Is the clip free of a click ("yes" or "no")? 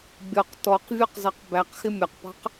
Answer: yes